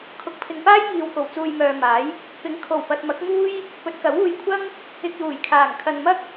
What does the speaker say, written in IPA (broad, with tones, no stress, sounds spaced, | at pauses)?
kʰ ʊ˨ k̚ pʰ ɪ˨ ŋ p aː˥ j ŋ iː˨ w k o˨˩ w t͡s uː˨ j m œː˨ m aː˨˥ j | p ɪ˨˥ ŋ kʰ o˨˩ w p ɐ˨ t̚ m ɐ˨˥ k̚ ŋ uː˥ j | p ɵ˨˥ t̚ k ɐ˨˥ w uː˧ j kʷʰ ɐ˥ ŋ | ɪ˨ k̚ j uː˨˩ j kʰ aː˨˩ ŋ kʰ ɐ˨ n m ɐ˥ k̚